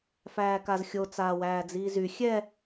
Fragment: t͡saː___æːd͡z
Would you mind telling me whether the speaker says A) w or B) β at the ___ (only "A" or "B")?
A